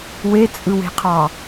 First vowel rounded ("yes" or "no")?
no